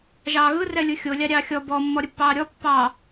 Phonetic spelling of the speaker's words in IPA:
ʒ ɑː ɣ ɯ r ɛ lʲ ɯ xʲ o lʲ ɑ ɾʲ ɑː xʲ ɔ b ɔ mː ɔ ɾʲ ə pː ɑː ɾʲ ɔ pː ɑ

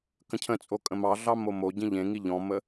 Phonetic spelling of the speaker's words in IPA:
k ə̃ cʰ ə̃ t͡sʼ o kʼ ə̃ m ɑ ɮ ɑ m o m o ɟ ĩ ʎ ẽ ŋ i ʎ ɔ̃ m ə

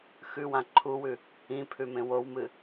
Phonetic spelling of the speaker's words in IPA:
x ʉ w ã ǃʰ u w ʉ | ĩ pʰ ʉ m ẽ w o w m ɨ

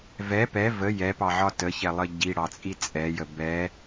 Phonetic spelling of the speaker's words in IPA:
v ɛ p ɛ v ə j ɛ p ɑ ʕ ɒ t ə ç ɛ lˠ ə ɟ i ɽ ɑ t͡sʼ i t͡sʼ ɛ j ə b ɛ

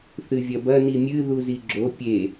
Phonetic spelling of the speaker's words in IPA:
θ ɨ vʲ ɐ b ɐ n i mʲ ɨ ð u z i ɡ͡ǁ o pʲ e

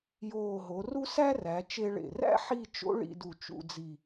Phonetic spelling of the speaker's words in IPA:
j oː˧˩ ɦ o˩˧ r u˥ s æ˥ r æ˩˧ t͡ʃ e˧ ɭ ḛ˧˩ r æ̰˥ ħ i˥˧ t͡ʃ o̰˥ ɭ ḭ˥˧ d u˧˩ t͡ʃ ṵ˥˧ d͡z i˧˩

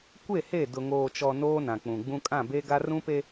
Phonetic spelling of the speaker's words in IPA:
kʷ e˦˨ h e˦˨ d ʊ˨ ŋ oː˨ t͡ʃ ɔ˨ n oː˦ n ã˨ k͡p ũ˨ ɡ͡b ũ˦ kʼ ã˦˨ b e˦ ɡ a˦ r ũ˦ p e˦

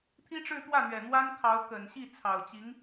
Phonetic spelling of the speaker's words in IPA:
t̪ʰ i˥ ʈ͡ʂ ɻ̩˥˧ t̪ w ä˥˩ n̪ ɥ ɛ˨˩ n̪ w a˥ n kʰ ɑ˧˥ ʊ̯ k ə˨˩ n ɕ i˥˩ t͡sʰ ɑ˨˩ ʊ̯ t͡ɕ i˧˥ ŋ

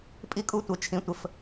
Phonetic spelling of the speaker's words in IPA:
pʼ i˦ kʼ u˦ tʷ ə˨ t͡ʃʰ ĩ˨ tʷ ə˦ f

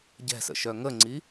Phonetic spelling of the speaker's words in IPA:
ɟ ɛ̤ s ə̰ ʃ œ ŋ ə ŋ͡ǀ i

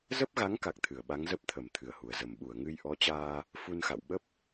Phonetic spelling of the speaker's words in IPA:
z ə˦˥ p̚ ɣ a˨˦ ŋ k a˨˩ k̚ t̪ʰ ɨ˧˩ ə̯ ɓ a˨˦ ŋ z ə˦˥ p̚ t̪ʰ ə˧˩ m t̪ʰ ɨ˨˩ ə̯ h u˨˩ ə̯ z ə˨˩ m ɓ u˧˩ ə̯ ŋ ɨ˧ j ʔ ɔ˨˦ t͡ɕ aː˧ | f u˧ n x a̰˧˨ w ɓ ə˦˥ p̚

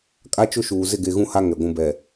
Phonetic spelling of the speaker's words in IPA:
kʼ a˦ t͡ʃ ʊ˦ ʃ uː˨ z ɪ˦˨ ɡ e˨ ɣ ũ˦ h a˦ ŋ ɛ˨ ɡʷ ũ˦ b ɛ˨

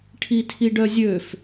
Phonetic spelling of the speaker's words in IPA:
ʈʰ i tʰ i ɖ œ zʲ ø f

